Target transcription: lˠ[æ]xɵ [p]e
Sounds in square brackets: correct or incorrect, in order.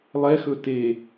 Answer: incorrect: ɛ, incorrect: t

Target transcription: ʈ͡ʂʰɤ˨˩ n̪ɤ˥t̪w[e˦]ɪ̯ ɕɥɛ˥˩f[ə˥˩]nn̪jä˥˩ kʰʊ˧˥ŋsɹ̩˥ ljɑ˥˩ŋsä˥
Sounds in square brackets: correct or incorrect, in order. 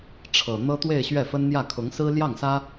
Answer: incorrect: e˥˧, incorrect: ə˥

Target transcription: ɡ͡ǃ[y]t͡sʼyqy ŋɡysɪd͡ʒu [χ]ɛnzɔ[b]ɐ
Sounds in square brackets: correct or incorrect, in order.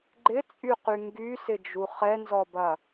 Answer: incorrect: ɪ, correct, correct

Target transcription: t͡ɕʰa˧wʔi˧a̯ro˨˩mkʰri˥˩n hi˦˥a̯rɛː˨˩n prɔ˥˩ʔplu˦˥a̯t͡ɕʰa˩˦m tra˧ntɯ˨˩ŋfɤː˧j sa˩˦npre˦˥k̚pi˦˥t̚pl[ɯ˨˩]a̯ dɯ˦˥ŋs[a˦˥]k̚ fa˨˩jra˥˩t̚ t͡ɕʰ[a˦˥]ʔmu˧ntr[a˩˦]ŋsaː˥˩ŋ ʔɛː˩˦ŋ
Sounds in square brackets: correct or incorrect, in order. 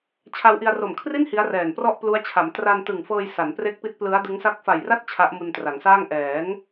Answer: incorrect: ɯ˦˥, incorrect: a˥˩, correct, correct

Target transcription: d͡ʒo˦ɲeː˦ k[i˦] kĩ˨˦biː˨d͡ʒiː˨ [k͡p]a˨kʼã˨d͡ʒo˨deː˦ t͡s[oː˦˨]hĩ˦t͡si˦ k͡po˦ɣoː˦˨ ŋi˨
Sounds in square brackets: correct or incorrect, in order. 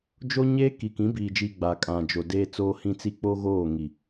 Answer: incorrect: i˨, incorrect: ɡ͡b, incorrect: oː˦

